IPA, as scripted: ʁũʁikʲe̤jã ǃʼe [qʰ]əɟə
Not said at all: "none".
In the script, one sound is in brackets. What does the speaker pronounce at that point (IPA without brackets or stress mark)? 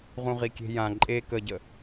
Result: k